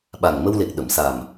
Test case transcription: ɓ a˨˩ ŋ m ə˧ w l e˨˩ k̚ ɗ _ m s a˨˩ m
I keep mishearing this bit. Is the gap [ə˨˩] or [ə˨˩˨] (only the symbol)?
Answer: ə˨˩˨